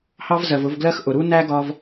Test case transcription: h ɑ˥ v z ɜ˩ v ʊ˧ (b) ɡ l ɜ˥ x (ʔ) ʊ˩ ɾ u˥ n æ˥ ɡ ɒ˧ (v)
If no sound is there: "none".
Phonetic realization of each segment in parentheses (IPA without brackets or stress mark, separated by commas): v, ʔ, v